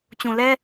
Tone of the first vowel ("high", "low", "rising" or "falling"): low